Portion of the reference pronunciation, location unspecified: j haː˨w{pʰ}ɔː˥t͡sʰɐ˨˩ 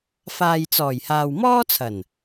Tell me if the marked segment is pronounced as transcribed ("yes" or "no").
no